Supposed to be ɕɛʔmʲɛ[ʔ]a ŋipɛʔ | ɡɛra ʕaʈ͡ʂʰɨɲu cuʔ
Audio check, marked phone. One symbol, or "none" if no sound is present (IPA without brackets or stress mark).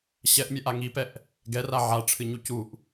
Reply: ʔ